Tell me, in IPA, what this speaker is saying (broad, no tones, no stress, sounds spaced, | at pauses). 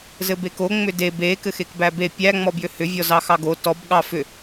z ɘ b e k o ŋ͡m ʏ d e b e k ɘ x e k b æ b e pʲ æ ŋ͡m ɔ b j ʏ h ʏ vʲ ɔ z ɑ x ɑ ɡ o t ɔ b ɠ ɑ f ʏ